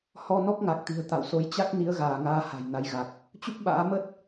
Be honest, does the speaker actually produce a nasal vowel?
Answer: no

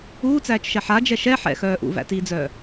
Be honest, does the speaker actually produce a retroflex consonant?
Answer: no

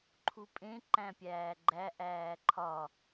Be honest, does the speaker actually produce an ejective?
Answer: yes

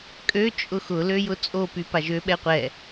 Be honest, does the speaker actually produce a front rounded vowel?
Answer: yes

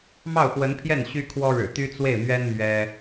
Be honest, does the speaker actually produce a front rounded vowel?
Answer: yes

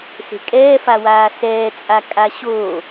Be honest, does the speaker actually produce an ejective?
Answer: yes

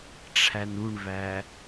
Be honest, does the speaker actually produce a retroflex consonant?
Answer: yes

